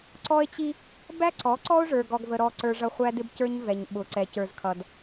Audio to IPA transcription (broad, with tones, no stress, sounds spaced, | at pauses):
ǀ ɔ˦ e̯ t͡ɕ i˦ | b æ˦ ǀ ɔ˨˦ ǀ ɔ˦ o̯ ʐ ə˞˨ ɡ ɔ˨ ɡ v ə˨ ɾ ɔ˨ ǀ ə˞˨ ʐ ʌ˨ χʷ æ˦ d ɪ˦ b c ə˞˦ ɲ v ɛ˨ ɲ ɓ ʊ˨ ǀ ɛ˨ c ə˞˨ z kʰ ʌ˨ d